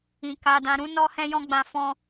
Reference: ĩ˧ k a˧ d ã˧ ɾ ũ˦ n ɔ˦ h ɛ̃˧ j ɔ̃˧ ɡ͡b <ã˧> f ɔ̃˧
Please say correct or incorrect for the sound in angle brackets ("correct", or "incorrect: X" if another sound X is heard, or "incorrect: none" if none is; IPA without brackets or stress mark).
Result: correct